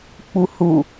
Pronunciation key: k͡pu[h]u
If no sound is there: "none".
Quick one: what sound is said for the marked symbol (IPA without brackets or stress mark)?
h